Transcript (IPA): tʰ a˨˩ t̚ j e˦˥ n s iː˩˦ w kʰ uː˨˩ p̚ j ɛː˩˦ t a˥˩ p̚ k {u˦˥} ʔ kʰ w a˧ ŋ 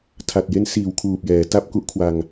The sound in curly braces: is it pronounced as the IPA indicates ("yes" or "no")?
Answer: no